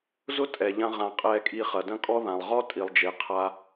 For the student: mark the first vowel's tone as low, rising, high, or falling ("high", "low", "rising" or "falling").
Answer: high